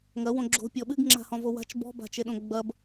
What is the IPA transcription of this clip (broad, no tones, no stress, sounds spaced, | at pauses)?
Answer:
ŋ ɐ w õ ɡ͡ǁ o̤ pʲ ɔ ɓ ɨ ɡ ŋ͡ǁ a̤ h ɔ̃ v o w a̤ t͡ʃ b ɔ̤ b a̤ t͡ʃ e ɗ õ ɡ͡b ɐ b